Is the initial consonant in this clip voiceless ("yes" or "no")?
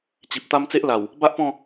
yes